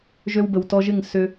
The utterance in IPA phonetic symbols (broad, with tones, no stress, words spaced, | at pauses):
ʒø˧wbə˨wtɔ˧ʒɪ˦˨ŋ sʏ˧